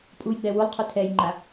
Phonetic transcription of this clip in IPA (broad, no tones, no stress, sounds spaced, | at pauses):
pʼ u j ɡ͡b ɛ w u lˠ qʰ u tʰ ɛ j ŋ͡ǃ a